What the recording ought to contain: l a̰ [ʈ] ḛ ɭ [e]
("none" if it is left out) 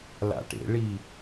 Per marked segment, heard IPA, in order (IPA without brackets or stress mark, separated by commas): ʈ, i